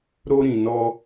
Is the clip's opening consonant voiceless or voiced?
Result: voiced